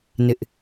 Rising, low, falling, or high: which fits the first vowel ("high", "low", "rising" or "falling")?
high